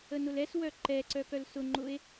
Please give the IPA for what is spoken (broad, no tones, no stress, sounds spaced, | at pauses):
ə n ʊ l ɛ s w œ ǃ ɛ ǀ œ k œ l s ʊ ŋ͡ǃ ʊ e̯